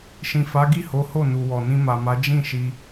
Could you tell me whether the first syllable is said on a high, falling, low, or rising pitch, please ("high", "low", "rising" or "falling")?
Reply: low